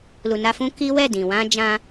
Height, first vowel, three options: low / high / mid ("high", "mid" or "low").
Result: high